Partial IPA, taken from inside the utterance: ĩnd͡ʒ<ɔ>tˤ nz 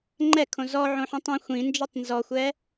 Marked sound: correct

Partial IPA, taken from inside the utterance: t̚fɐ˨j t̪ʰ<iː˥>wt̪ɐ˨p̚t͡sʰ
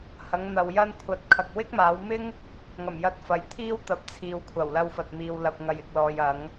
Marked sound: correct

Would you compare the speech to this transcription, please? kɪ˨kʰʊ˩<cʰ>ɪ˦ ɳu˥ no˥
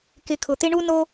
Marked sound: incorrect: t̪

